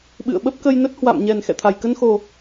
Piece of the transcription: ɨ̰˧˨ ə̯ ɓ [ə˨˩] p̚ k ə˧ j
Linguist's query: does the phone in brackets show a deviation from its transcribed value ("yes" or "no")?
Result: yes